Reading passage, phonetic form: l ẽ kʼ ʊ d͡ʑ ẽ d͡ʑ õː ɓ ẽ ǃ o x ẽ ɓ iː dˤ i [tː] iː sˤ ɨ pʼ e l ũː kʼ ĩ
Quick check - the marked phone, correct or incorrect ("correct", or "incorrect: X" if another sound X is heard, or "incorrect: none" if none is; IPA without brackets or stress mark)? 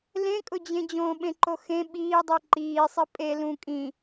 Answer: incorrect: ǃ